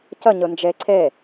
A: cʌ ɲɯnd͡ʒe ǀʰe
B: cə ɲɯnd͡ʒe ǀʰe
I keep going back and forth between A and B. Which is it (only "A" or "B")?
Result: B